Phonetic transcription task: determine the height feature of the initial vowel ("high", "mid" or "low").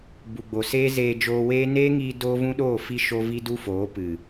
high